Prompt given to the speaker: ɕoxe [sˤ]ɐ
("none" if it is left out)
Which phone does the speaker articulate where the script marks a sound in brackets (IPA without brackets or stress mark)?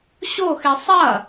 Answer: sˤ